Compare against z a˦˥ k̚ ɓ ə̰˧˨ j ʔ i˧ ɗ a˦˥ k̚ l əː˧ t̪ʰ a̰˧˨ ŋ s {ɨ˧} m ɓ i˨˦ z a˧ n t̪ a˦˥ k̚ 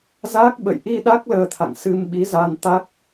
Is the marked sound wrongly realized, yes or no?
no